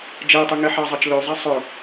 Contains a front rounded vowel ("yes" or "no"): yes